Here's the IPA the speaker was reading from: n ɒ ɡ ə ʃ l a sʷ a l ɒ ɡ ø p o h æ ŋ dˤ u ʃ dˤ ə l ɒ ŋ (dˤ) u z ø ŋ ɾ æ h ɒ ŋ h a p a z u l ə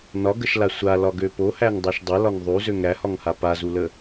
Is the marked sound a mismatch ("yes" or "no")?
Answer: yes